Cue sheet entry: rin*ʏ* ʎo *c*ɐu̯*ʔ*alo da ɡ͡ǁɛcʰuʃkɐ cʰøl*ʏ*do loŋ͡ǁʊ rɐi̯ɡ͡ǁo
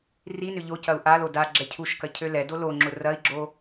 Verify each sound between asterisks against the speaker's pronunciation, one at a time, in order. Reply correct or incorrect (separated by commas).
correct, correct, correct, incorrect